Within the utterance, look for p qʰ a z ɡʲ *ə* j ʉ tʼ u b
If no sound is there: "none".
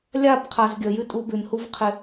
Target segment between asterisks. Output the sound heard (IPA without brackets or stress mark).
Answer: ə